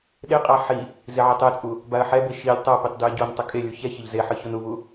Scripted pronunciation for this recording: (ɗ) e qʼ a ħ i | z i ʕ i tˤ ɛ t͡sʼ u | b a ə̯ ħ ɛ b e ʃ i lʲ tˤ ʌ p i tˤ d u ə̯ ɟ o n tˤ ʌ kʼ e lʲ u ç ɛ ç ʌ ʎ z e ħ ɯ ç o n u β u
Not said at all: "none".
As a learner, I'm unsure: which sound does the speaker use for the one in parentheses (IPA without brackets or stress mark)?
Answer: ɗ